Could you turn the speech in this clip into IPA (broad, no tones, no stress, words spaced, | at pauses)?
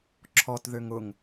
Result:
ǁʰɔtðøŋ ʊŋ